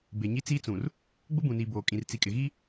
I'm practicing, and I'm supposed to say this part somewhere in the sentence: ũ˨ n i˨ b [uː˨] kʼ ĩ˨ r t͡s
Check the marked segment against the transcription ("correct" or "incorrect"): incorrect